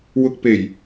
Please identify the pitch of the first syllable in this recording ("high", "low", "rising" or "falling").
low